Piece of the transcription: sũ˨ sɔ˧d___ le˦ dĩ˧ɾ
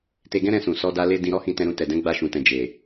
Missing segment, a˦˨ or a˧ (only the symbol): a˧